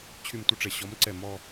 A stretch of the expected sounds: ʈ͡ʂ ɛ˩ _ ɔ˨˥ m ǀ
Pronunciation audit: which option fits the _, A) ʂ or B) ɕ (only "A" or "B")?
B